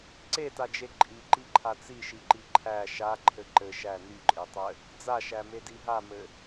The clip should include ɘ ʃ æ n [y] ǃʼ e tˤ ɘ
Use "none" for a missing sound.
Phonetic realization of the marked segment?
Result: y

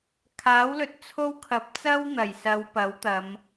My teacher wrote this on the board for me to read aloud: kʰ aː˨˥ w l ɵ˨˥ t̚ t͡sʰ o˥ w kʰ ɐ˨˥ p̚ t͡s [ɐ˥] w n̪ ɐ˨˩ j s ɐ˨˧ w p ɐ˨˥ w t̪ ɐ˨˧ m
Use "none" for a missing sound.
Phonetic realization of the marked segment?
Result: ɐ˥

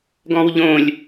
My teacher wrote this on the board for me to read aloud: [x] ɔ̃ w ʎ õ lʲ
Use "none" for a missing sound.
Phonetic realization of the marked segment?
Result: ɡ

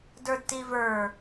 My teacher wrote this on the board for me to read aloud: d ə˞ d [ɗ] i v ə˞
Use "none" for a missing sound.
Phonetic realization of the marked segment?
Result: t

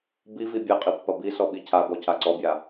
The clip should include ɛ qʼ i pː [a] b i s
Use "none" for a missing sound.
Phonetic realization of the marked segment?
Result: ɐ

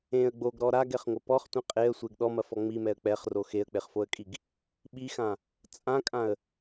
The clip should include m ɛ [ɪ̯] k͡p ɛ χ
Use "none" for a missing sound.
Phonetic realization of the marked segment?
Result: ə̯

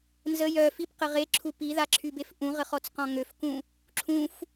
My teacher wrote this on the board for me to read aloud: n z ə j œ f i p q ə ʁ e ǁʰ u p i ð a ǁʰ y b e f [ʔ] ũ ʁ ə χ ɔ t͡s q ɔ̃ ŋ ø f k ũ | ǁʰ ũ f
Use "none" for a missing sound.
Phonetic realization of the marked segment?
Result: ʔ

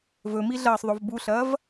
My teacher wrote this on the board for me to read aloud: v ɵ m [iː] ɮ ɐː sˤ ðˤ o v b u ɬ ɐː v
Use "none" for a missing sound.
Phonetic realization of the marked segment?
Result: i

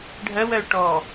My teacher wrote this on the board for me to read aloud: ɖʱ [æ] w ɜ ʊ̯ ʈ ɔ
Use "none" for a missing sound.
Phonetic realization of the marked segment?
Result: ɜ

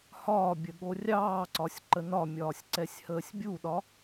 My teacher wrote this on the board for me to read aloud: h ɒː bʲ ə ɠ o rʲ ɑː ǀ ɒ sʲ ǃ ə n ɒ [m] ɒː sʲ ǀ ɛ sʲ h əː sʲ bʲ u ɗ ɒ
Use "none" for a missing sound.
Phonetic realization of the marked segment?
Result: mʲ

